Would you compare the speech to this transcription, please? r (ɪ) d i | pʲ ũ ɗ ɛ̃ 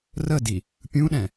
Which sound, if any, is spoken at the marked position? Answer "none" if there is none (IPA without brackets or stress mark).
ə